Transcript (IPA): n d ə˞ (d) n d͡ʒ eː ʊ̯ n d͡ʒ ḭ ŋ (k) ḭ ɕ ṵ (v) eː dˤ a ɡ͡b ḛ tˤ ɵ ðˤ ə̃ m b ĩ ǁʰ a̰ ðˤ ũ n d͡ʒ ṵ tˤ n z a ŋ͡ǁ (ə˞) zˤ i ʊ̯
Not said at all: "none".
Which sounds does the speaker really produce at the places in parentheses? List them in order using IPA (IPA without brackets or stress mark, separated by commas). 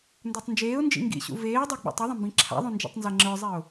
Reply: tˤ, ɡ, v, ə˞